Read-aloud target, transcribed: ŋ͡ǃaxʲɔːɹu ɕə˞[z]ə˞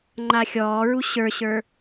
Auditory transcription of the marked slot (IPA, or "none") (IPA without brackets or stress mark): ɕ